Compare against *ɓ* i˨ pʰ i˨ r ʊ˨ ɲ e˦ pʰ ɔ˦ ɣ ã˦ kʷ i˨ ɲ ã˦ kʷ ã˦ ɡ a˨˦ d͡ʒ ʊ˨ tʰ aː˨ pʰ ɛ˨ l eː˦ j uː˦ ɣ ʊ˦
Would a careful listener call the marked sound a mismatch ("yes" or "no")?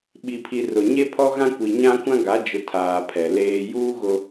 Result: no